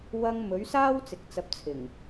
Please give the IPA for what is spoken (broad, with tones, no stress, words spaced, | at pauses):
wɐ˧ŋ mɵ˨˥ɥsaː˥w t͡sɪ˨k̚t͡sɐ˨˥p̚t͡sʰɪ˨˩ŋ